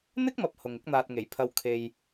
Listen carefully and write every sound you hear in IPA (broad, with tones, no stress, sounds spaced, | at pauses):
n̪ ɪ˥ k̚ m ɐ˨ p̚ h ʊ˨ ŋ ɪ˥ k̚ n̪ aː˧ t̚ ŋ e˨˩ j pʰ ɐ˧ w kʰ e˨ j